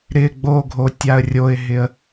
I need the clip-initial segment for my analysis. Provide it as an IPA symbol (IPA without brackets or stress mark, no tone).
ɾ